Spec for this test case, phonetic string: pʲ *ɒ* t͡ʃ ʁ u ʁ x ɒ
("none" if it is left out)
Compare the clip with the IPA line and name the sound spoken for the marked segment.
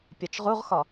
ɒ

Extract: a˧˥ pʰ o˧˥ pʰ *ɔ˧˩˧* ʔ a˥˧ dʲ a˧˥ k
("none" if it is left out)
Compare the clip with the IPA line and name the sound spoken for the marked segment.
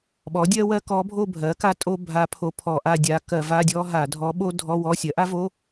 ɔ˧˩˧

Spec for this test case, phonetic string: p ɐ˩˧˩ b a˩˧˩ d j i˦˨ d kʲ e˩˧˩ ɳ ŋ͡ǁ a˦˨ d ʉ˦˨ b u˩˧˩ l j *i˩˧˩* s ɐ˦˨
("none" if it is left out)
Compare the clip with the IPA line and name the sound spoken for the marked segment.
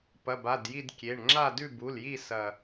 i˦˨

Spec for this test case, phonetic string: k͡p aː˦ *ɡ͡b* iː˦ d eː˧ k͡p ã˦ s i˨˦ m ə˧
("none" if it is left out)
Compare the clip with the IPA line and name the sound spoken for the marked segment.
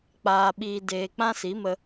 ɓ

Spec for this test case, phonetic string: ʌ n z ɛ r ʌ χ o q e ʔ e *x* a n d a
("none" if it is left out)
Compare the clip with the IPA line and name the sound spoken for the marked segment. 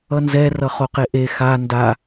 x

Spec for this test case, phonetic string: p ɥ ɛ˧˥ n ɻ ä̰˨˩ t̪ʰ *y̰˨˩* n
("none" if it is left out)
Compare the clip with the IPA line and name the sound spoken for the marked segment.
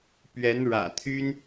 y˥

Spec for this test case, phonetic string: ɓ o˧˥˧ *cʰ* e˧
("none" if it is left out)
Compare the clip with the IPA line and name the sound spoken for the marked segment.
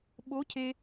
cʰ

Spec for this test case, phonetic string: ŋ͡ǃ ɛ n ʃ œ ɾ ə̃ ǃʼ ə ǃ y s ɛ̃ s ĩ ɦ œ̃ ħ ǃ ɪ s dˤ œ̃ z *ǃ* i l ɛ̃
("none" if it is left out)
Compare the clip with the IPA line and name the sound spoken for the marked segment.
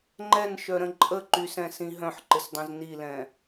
n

